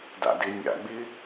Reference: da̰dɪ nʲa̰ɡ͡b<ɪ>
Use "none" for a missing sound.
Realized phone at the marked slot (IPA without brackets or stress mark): ɪ